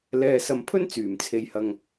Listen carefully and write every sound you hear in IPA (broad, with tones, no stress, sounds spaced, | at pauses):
l ɛː˨ s ɐ˨ m pʰ ɵ˥ n t͡s yː˨˩ m t͡sʰ e˨ j h ɐ˨ ŋ